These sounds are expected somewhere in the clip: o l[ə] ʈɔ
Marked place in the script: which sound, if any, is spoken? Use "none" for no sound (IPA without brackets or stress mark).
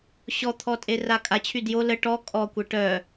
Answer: ə